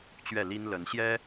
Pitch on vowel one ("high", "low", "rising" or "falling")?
falling